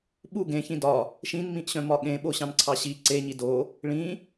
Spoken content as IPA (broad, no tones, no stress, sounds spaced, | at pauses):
ɓ u ɡ ẽ ç ĩ d ɒ | ʃ ĩ n m ĩ ʔ ɕ œ̃ m ɒ ɠ ẽ ɓ o ɕ ɑ̃ n ǀʰ ɑ ɕ i ǀ e ɲ i d o | ɭ ĩ